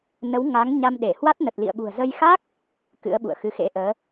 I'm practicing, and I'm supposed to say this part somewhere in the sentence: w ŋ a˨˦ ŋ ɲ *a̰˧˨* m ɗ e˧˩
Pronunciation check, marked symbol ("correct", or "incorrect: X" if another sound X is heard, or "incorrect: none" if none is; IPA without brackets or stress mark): incorrect: a˧